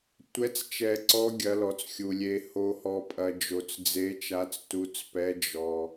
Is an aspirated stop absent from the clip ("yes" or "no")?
yes